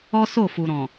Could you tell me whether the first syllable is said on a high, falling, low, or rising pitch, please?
high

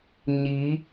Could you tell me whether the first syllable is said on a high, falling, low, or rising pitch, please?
rising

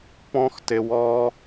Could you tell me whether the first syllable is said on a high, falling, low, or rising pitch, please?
high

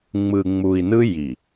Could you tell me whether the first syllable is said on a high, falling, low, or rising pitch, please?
low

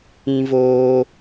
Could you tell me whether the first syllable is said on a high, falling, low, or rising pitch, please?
high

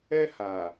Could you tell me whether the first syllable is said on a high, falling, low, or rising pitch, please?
high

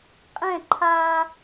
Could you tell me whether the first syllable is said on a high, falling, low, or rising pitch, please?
falling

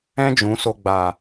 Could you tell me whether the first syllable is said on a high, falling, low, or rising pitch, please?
high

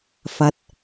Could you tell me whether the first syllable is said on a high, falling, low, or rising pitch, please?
low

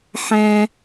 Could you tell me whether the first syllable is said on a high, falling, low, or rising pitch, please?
high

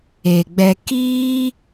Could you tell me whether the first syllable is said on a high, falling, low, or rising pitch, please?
low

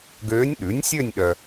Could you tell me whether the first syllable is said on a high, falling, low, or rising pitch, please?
rising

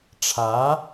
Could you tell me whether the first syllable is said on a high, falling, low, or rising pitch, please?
rising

